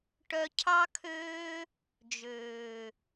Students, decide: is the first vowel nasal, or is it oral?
oral